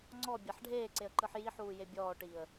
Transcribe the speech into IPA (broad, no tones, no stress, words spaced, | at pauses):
ŋ͡ǀɔbʲaħ ɖʱeːǀeə̯ǃɯħ jiħuːje bʲɔːʈiːə̯